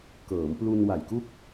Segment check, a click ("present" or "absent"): absent